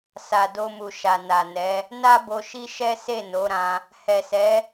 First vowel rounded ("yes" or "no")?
no